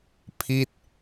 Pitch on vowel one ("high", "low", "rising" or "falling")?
falling